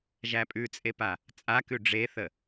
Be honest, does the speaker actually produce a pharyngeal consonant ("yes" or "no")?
no